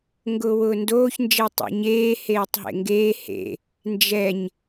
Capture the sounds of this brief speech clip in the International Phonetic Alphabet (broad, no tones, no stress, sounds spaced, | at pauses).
ŋ ɡ ʊː w ʊː n d oː ç n d͡ʒ e tˤ o̰ ɲ eː h eː tˤ ɦ ḛ ŋ ɡ eː h ḛ | n d͡ʒ ɛ ɲ